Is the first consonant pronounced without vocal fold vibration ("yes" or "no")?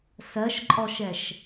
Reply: yes